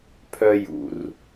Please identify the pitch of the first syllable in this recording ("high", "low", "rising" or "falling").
high